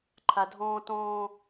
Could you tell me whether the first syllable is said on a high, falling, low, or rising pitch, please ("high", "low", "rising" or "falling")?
low